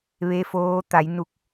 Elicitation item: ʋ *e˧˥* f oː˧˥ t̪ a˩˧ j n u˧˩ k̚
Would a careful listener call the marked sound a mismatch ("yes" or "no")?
no